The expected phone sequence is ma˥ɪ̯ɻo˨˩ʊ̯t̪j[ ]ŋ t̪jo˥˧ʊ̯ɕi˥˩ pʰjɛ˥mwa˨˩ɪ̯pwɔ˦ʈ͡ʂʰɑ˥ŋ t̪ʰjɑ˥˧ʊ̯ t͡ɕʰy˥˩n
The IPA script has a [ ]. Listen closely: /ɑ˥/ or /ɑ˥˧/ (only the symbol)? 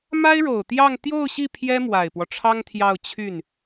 ɑ˥˧